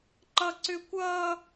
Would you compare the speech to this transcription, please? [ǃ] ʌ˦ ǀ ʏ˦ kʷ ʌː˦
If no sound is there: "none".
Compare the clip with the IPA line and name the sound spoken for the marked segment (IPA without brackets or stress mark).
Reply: ǃ